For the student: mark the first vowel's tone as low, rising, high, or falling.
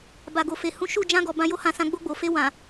low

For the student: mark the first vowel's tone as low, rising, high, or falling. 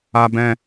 low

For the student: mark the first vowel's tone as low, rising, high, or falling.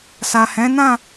low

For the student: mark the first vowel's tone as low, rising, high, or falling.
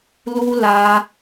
high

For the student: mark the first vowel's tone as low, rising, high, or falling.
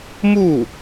falling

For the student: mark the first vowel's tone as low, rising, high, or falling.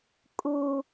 high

